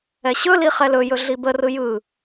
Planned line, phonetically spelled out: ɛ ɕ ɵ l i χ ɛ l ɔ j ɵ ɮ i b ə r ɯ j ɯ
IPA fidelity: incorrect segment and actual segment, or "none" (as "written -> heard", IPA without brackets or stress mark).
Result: ɔ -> ɵ